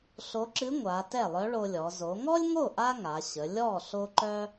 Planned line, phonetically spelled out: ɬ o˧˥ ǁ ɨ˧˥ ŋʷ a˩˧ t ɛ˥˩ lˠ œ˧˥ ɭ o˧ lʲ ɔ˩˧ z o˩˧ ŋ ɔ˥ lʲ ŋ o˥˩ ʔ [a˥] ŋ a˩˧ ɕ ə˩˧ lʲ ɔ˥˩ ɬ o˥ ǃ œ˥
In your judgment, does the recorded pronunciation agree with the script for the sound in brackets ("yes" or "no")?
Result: yes